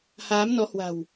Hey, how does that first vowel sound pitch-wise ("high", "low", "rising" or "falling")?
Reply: rising